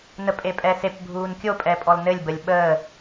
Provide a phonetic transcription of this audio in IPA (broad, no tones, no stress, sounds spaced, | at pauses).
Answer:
n ə pʼ e pʼ ɛ s e p bʱ uː n kʲ o pʼ ɛ pʼ ɔ l n ɘ lʲ b ə lʲ ɓ əː